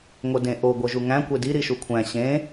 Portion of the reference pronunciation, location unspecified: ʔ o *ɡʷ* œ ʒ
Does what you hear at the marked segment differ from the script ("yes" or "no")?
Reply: no